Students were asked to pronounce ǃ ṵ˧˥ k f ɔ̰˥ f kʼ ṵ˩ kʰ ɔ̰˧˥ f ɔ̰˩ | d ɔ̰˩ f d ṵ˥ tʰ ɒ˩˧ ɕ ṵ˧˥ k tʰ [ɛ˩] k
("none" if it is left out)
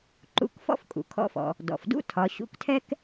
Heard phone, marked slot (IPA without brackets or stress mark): ɛ˥